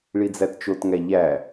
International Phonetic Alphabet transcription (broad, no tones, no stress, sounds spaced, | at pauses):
ɭ i d͡z æ t t͡ʃ o t ŋ æ ʎ æ